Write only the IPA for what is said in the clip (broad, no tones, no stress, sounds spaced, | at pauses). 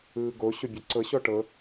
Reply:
ɯː ɡ o ɕ o bʲ o ǀ ɤ ɕ ɔ ʈ ɤ